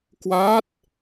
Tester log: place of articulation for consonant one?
velar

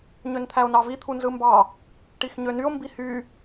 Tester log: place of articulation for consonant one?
palatal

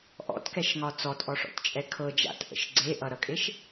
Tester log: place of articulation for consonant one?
glottal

